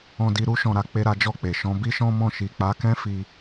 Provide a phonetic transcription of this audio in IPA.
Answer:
ɔ̃˧di˧ ɾu˦ ʃɔ̃˧ɾa˧ k͡pe˦ɾa˦d͡ʒɔ˦˨k͡pe˨ ʃɔ̃˨˦bi˦ʃɔ̃˦mɔ̃˦˨ ʃi˨k͡pa˨˦kɛ̃˦fi˧

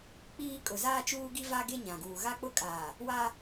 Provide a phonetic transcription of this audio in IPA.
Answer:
k͡piː˦ kʼʊ˨zaː˦t͡ʃuː˦ ɡi˦va˦ ɡe˦ɲã˨ ɡuː˨ɣa˦ k͡pʊ˦kʼaː˨ | wa˦

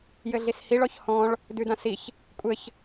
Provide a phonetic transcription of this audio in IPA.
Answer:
jɘɮishiɭ ɔçhɔ̃ɭ | dʉdãsiç | kʷʼɘç

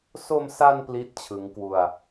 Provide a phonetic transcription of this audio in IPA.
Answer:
so˧msa˧n pli˥˩t̚t͡ɕʰɯ˦˥ŋkwu˧a̯

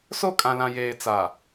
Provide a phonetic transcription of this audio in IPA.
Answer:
so˦˨kʼã˨lã˨ jeː˨t͡sa˨

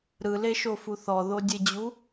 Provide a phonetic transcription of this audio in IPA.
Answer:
ɾɯleʃofu θɔðodʲed͡ʑu

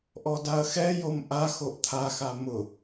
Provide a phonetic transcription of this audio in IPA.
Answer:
ʔɔdaɐ̯xɛjom ʔa xoʔt̪ʰaxa mʊ

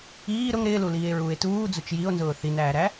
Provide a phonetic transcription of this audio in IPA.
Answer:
iː ɾʊŋ ɾɪːluliːe̯ɹuːe̯ tuːd͡zʊt͡ʃ jio̯nzʊː θinæːɾæ

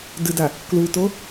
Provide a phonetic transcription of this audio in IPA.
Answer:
dɨda | kluto

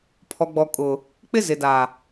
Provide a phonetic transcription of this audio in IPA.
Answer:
pʰɔ˨ɡ͡bɔ˨ kʼʊ˨ | k͡pɪ˦zɪ˨da˨

